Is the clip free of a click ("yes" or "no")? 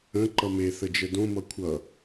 no